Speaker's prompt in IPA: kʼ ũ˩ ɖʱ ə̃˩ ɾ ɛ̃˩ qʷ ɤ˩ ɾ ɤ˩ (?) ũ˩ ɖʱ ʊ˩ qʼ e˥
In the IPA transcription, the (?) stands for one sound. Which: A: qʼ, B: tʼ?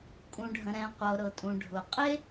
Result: B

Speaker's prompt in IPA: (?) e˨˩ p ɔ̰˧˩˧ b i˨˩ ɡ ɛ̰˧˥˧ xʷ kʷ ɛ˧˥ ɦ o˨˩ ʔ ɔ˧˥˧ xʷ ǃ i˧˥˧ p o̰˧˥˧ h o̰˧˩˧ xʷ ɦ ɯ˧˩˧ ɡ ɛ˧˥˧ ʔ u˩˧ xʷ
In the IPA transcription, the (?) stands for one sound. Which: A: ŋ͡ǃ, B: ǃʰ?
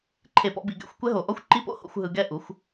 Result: B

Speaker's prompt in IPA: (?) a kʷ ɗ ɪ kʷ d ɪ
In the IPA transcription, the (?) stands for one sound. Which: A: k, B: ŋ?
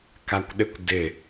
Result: A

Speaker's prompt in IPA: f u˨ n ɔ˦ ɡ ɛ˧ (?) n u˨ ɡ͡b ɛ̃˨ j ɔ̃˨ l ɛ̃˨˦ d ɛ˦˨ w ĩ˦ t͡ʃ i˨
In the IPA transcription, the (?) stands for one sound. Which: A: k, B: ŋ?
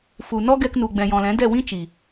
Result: A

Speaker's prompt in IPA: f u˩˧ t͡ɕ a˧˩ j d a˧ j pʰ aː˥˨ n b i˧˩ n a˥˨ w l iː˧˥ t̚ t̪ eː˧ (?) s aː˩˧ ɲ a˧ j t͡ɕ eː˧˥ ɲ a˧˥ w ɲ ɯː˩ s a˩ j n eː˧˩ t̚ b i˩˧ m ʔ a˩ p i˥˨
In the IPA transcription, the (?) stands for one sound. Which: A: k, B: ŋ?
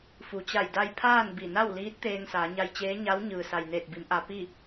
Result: B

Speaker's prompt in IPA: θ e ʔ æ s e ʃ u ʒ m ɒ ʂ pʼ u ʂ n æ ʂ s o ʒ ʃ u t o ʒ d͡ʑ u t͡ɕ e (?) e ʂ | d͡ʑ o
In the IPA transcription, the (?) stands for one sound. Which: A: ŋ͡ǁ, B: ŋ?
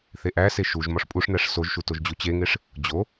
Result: B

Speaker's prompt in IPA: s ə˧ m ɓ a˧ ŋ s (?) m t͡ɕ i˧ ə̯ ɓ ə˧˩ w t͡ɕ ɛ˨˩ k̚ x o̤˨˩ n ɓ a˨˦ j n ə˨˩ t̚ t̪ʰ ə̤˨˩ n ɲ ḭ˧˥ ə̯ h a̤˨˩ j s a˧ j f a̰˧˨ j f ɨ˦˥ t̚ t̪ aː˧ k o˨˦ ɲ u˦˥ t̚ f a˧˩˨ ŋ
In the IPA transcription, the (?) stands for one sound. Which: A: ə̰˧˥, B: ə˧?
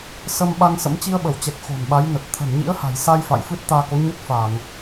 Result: A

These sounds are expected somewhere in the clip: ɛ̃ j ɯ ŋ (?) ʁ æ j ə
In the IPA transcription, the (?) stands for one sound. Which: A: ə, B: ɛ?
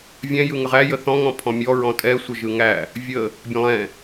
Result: A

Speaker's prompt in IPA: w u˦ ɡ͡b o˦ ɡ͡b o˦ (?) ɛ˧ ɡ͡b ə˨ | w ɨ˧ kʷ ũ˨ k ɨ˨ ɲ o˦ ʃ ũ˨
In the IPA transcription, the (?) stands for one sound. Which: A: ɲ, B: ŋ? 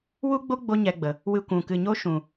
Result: A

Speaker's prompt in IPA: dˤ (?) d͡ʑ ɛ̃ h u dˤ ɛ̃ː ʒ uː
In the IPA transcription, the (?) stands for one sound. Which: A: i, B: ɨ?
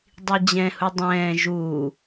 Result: A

